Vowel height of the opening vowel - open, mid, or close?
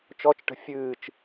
mid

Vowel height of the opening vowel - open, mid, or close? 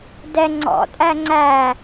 mid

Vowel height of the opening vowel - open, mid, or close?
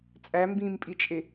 open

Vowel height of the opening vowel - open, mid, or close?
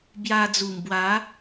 open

